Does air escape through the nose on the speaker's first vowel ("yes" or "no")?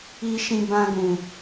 no